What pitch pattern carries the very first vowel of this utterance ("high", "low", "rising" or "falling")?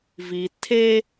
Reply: low